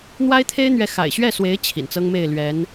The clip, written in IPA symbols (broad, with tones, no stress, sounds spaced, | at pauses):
n̪ w a˥ ɪ̯ t̪ʰ e˥ ɪ̯ n̪ ɥ ɛ˧˥ x a̰˨˩ ɪ̯ ɕ ɥ ɛ˥˩ s w e˧˥ ɪ̯ t͡ɕʰ ḭ˨˩ n t͡s ɤ˥ ŋ m e˥˩ ɪ̯ l ɥ ɛ˧˥ n